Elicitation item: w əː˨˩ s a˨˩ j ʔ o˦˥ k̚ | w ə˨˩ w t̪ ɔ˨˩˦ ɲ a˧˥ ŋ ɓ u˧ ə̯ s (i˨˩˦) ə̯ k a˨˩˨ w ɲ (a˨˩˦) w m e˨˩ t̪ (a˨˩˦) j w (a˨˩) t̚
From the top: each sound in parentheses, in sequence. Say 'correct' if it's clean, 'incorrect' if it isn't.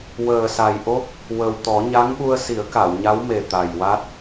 correct, incorrect: a˧˥, incorrect: a˨˩, incorrect: a˦˥

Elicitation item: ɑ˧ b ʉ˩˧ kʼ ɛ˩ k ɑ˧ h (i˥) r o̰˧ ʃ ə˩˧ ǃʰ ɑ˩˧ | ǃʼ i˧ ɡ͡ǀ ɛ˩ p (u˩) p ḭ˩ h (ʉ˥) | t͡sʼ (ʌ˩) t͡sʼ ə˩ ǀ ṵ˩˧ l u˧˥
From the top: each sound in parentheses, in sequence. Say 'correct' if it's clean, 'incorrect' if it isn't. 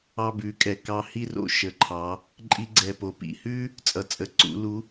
correct, incorrect: o˩, correct, correct

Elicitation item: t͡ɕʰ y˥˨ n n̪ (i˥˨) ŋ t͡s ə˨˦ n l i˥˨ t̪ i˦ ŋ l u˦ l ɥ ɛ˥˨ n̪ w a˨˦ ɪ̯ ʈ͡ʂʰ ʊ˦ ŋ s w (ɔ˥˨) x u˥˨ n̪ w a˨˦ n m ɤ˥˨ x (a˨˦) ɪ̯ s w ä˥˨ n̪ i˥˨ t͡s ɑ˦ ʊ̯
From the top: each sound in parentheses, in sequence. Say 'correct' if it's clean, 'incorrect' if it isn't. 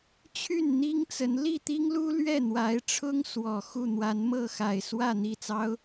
incorrect: i˦, incorrect: ɔ˨˩, incorrect: a˨˩

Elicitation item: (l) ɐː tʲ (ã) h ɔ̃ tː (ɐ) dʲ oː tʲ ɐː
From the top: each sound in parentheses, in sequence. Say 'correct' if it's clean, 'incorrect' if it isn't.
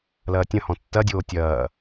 correct, incorrect: ɐ̃, correct

